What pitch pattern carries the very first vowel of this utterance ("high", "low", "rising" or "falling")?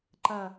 falling